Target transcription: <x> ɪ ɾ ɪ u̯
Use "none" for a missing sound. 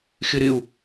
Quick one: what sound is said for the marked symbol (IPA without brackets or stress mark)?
x